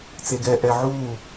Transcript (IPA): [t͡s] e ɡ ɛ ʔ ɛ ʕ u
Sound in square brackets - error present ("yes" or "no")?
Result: no